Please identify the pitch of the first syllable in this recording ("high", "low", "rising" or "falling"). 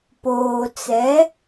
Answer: low